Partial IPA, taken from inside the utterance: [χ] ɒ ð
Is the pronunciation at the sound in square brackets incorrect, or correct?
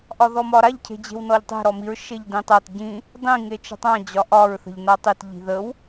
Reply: incorrect